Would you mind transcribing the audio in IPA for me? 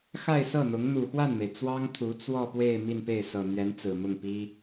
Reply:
x a˥˧ ɪ̯ s ɤ˥˩ n̪ ʊ˧˥ ŋ n̪ u˨˩ x w a˥˩ n m e˩ ɪ̯ t͡s w ɑ˥ ŋ t̪ʰ u˧˥ t͡s w ɔ˥˧ p w e˥˧ ɪ̯ m i˥˧ n p e˥˩ ɪ̯ s ɤ˨˩ n̪ ɥ ɛ˧˥ n t͡s ɹ̩˨˩ m ʊ˥˩ ŋ p i˥

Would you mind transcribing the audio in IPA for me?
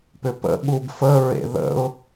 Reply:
p ʏ p ə̰ ɠ u b f ə ɹ ḛ ð ə̰ ʊ̯

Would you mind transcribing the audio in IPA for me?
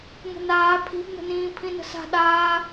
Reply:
ŋ ə̤ n aː pʰ i̤ b n ə̤ n ĩː pʰ ĩ n ə̤ s a̤ ɗ aː

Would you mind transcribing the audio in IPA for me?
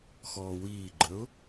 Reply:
x ɔː w iː ɡ͡ǃ ə ʊ̯

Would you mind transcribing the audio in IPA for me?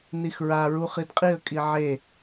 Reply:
n i x ɹ a ɹ u χ i d qʼ i ə̯ kʼ i ʕ e

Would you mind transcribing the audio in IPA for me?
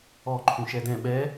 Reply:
ɔ ǃʰ ũ ʃ ɛ d ɛ̃ ɓ ɛ

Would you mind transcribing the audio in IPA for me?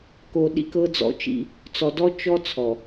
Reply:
k o˨ ɗ ḭ˦ k ɤ˦ d͡z ɔ̰˨ t͡ʃ ḭ˦ | t͡s ɔ˨ d ɔ˦ t͡ʃ ɔ˦ t͡sʰ ɔ˨

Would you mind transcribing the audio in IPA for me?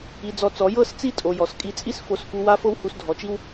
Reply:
i˧ d͡z ɔ˧ t͡s ɔ˨˦ j ɤ˦˨ s t͡s i˦˨ tʼ o˧ j ɔ˨ s kʼ i˧ t͡sʼ i˦ s f o˧ s f u˧ w a˦ f ɤ˦ w h u˧ s dʱ ɔ˨˦ t͡ʃ i˦ w

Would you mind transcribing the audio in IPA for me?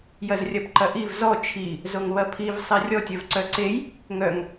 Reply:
j ɐ z rʲ ɐ p ǃ ɐ ʔ i v z ɔ t͡ʃʰ i | z o ŋ β ɐ pʰ i v sˤ e rʲ ɔ tʲ œ v ǀ œ ǀ e j | ŋ œ ŋ

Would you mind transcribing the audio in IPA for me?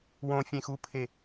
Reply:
w õ fʲ ẽ x u pʰ e

